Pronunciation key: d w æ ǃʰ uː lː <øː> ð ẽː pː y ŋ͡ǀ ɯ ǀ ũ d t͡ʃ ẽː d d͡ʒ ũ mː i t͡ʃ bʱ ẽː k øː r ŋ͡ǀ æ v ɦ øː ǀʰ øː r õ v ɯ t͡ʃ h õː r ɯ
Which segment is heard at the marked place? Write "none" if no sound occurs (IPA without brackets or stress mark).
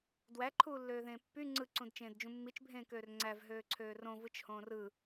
øː